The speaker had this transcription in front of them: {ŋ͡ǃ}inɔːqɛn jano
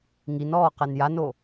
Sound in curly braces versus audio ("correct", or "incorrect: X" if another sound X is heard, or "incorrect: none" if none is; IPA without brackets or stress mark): incorrect: ŋ